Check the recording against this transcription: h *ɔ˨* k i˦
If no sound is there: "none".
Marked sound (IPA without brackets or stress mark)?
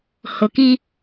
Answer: ʊ˨